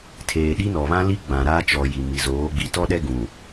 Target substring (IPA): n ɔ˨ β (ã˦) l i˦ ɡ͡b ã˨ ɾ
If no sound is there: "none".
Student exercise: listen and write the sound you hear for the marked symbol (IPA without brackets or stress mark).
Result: ã˦